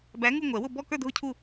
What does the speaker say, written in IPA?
b æ˨˦ ŋ u˥˧ ŋʷ ɛ˨˩˦ w ʊ˥˧ b ɔ˥˧ k ə˞˥˧ dʱ ʊ˥˧ cʰ u˥˧

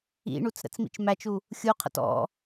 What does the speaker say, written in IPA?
ḭ ɳ u t͡s ɾ ə̰ t͡s m ḭ t͡ʃ m æ t͡ʃ u | xʲ u qʰ ə̰ t ɔ̰

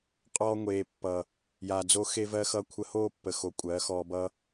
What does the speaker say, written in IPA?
qʼ ɔː˧ ŋʷ eː˨ pː ʌ˨ | j aː˨ d͡z o˧ x e˦ v ɜ˦ x ʌ˦ kʷʰ ə˧ h oː˦ pː ə˨ x o˨ kʷʼ ɜː˨˦ x ɔː˧ b ʌ˦

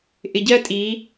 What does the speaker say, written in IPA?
ʔ ɪ˨ ɟ ɜ˦ tʼ i˨˦

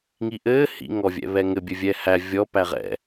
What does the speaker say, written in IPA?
ŋ i ʔ ɘː h ḭ ŋ ɔ vʲ ɛ̰ β ɛ ŋ ɘ bʲ ɘ vʲ ɛː h æ vʲ ɔ p æ ʁ ɛ̰

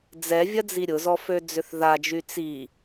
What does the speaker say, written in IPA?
d͡z ɛ vʲ ɐ d͡z i ɾʲ ʊ z ɔ f ø d͡z ʏ θ ð a d͡ʒ y t͡s i

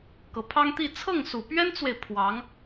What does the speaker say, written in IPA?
k ɤ˨˩ pʰ ɑ˥ ŋ t̪ i˥˧ t͡sʰ ɤ˥˩ ŋ s u˨˩ p ɥ ɛ˥ n t͡s w e˨ ɪ̯ pʰ w ɑ˧˥ ŋ

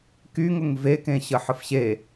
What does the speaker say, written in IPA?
k y ŋ ʊ ŋ v e k ẽ ɕ ə ħ ə f ɕ e

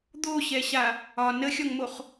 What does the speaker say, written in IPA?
d̪ o ɕ ɛ ɕ a | ɒ n ə xʲ ɒ ŋ m o χ

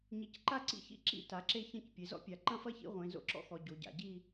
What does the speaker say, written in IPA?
ɲ i˩˧ c ǃ a˥˧ ǀ ḭ˥˧ ç ḭ˥˧ ǁ ḭ˥˧ t a˩˧ ǁ e˥˧ ç ɐ̃˥˧ c pʲ e˩˧ z ɔ̰˥ pʲ a˩˧ ǃ ɐ̃˥˧ f ɐ˥˧ ç ḭ˥˧ ʁʷ ẽ˩˧ z o̰˥ ǁ ɔ̰˥ x ɔ˩˧ ɟ o˩˧ ɟ a̰˩˧ ɟ i˥˧

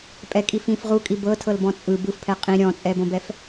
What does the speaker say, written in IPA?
pʼ ɛ kʼ i f ĩ f ʁ u kʼ i b ɤ tʰ ɤ l b ɔ̃ t͡sʼ ɯ b ɯ f pʰ ɛ qʼ ĩ ɾʲ ɔ̃ t͡sʼ ɛ b õ b ɛ f

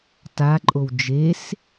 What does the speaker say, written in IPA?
t a ǃʼ o w d͡ʒ e s

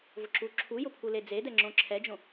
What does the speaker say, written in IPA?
v ʊ ǁ u ǁʰ u j ʊ pʰ u l e d͡z e d ɛ ŋ͡ǁ õ ǁʰ ɛ d͡ʒ õ

